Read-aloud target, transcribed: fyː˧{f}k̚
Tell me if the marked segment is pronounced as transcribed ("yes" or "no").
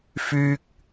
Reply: no